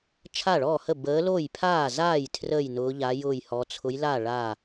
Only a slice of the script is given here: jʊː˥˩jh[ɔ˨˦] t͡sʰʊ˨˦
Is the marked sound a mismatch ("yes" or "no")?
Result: no